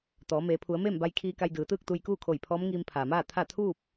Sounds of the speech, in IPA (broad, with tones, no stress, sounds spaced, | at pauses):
t̪ ɔː˩˧ m eː˩˧ pʰ u˩˧ ə̯ m eː˥˨ m b a˧ j kʰ iː˧ k a˧ j d ɯː˩˧ t̪ ɯː˥˨ k̚ t̪ u˧ j k uː˥˨ kʰ o˧˩ j pʰ ɔː˧˥ m ŋ iː˧ m pʰ aː˩ m aː˥˨ t̪ʰ a˥˨ t̪ʰ uː˥˨ p̚